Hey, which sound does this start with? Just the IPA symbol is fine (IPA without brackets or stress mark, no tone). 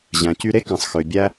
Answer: ʑ